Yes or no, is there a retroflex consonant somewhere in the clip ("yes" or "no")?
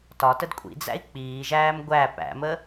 no